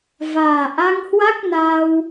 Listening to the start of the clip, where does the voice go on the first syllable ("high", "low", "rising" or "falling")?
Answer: low